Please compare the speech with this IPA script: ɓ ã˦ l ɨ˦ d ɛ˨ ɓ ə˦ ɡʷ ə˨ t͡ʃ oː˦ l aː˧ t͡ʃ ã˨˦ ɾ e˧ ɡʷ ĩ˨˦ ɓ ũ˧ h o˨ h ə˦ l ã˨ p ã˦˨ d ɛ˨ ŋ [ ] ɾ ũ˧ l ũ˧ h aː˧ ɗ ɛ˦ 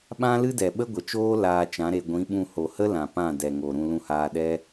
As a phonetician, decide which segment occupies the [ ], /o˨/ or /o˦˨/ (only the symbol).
o˨